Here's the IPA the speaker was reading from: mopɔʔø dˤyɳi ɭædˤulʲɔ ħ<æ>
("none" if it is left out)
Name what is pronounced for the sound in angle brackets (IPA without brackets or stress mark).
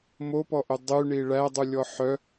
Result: œ